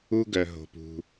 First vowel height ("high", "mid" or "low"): high